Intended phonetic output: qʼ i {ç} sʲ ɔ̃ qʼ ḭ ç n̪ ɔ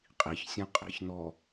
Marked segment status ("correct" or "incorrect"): correct